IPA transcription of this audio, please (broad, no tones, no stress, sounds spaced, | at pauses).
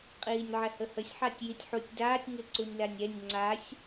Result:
qʼ iː nʲ ʕ ɛ h ə h ə sʲ ħ a tʲ j i tʲ ħ u tʲ d aː tʲ ŋ ɪ ǀ u nʲ l a nʲ ɛ nʲ ŋ͡ǀ a sʲ